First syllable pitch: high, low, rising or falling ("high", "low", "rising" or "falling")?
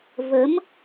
rising